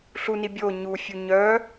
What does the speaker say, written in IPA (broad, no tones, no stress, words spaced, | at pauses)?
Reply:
ɬuni bʲo ɲufʲu ɲœ